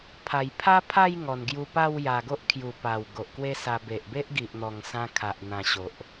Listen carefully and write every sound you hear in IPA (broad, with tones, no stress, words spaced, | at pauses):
pʰa˨˩j pʰa˦pʰa˥˧j ŋɔ˨˩n ɡju˧pa˥˧wja˨˩ɡo˦ʔ kʰju˨˩pa˨˩w ɡo˨ʔkwe˦sa˧ be˨ʔbe˦ʔ ɡi˨ʔn̪ɔ˨˩ŋsã˧ kʰa˨ʔ n̪ã˨˩ ɕo˨ʔ